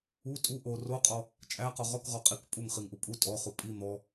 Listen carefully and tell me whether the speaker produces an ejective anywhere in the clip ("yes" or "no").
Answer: yes